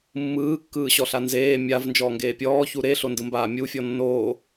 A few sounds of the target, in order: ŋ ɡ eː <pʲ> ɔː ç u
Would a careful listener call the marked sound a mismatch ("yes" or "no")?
no